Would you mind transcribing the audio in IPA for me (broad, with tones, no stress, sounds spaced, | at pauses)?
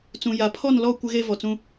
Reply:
t͡s ũ˨ j a˨ pʰ ɔ˦˨ n l ɔ˦˨ kʷ ɪ˦ ɣ e˦ v ɔ˨ t͡s ũ˦